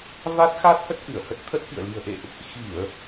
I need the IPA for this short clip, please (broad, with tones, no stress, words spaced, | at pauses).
va˦˥t̚ xa˦˥t̚hə˦˥t̚ ʔɨ˧˩ə̯hə˦˥t̚t̪ʰə˦˥t̚fḭ˧˨ə̯ li̤˨˩ə̯ʔḛ˧˨ʔ | xi˧˩˨ə̯